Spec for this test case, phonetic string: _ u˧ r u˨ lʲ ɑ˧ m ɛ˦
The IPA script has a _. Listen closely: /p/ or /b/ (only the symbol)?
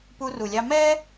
p